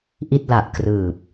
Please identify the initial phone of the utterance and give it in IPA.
ʔ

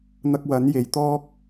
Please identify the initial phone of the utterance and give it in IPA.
n̪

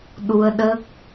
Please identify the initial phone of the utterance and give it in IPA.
ɗ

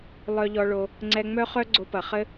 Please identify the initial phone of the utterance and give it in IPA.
lˠ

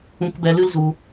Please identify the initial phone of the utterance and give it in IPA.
ũ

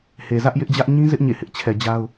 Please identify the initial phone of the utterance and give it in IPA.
h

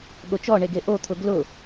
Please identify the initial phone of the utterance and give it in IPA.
ɠ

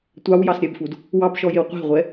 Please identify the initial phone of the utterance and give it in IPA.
tʷ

